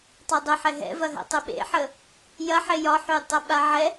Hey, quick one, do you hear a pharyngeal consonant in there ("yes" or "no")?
yes